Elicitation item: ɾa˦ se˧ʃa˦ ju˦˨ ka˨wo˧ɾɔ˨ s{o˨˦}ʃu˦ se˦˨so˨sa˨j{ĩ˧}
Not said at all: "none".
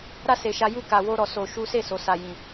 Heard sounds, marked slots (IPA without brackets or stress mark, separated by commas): o˧, ĩ˨